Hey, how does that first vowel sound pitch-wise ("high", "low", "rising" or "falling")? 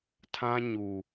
high